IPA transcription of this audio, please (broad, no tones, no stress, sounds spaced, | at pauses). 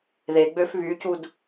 ð e ɡ͡b ø f β y c u d